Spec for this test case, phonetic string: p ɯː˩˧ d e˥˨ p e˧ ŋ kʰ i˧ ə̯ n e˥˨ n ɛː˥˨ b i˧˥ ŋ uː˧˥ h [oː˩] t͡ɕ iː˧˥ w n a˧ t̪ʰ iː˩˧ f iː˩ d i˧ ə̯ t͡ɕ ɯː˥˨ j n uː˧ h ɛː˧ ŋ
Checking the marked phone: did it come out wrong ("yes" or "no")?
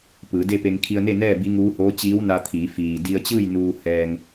yes